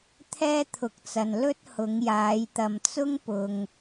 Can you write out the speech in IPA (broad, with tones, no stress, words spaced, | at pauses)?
t̪ʰɛː˥t̪ʰʊ˨˥k̚t͡sɐ˨n lɵ˥t̚ hʊ˨˧ŋjaː˨˧jt̪ɐ˨m t͡sʊ˥ŋpʊ˨ŋ